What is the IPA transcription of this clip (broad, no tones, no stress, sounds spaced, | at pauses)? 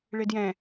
ɭ e d j ɛ̃